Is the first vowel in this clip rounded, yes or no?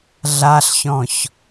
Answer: no